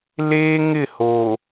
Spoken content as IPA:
l eː˦ ŋ ɪ˦˨ h o˨

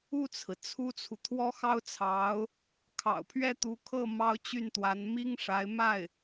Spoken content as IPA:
u˥˩ t͡sʰ ɹ̩˩ t͡sʰ u˥ t͡sʰ u˨ t̪ʰ w ɔ˥ x ɑ˥ ʊ̯ t͡sʰ ɑ˧˥ ʊ̯ | kʰ ɑ̰˨˩ ʊ̯ pʰ ɥ ɛ˥˩ t̪ u˧˥ kʰ ɤ˥˩ m ɑ˥ ʊ̯ t͡ɕ y˥˩ n t̪ w a˧˥ n m i˥ ŋ ʂ a˧˥ ɪ̯ m a˥˩ ɪ̯

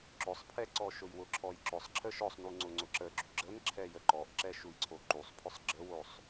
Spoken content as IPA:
ǁ ʊ sˤ pʰ ɛ ǀ ɔ ʃ ʊ j w ʊ ǁʰ ɔ j ǁ ʊ sˤ ǁʰ ə ʃ ɔ sˤ n u ŋ͡ǀ ʊ ŋ͡ǀ ʊ ǁ ə ɡ͡ǁ y ɡ͡ǁ ə n ǁʰ ɛ j ə ǃ ɔ ʔ ǁ ɛ ʃ u j ǀʰ o ǃ u sˤ pʰ ʊ sˤ ɡ͡ǁ ə w o sˤ

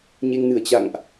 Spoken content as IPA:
ɲ e˧ ŋ n ɨ˧˩ ə̯ t͡ɕ a̰˧˨ ŋ ʔ

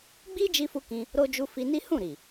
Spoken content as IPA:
ɡ͡b i˦ d͡ʒ i˦ f u˦ k ĩ˧ | ɾ o˧ d͡ʒ u˧ f i˧ n i˦ h ũ˦˨ ɾ i˨

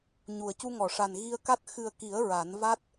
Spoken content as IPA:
ɲ u˨˩ ə̯ c u˧ ŋ ɔ˨˩˨ ʂ a˨˩ n ɣ i˧ ə̯ k a˦˥ t̚ x ɨ˨˩ ə̯ k i˨˩˦ ə̯ ɹ a˨˩˦ n v a˦˥ t̚

